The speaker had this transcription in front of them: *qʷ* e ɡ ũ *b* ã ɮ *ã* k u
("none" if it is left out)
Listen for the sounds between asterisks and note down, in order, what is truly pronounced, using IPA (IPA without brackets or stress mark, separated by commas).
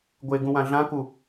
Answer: ɡʷ, w, ã